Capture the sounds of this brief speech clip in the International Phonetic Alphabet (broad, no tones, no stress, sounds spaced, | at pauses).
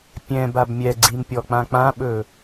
pʲ ɛ̃ b a b mʲ ɛ ɡ͡ǀ i m pʲ ɔ k͡p ã k͡p ã ɓ ɵ